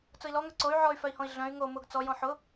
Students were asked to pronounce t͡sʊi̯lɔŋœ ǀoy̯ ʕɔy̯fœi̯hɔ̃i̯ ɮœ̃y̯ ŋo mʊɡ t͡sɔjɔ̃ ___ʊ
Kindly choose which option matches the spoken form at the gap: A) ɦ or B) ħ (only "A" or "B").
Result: B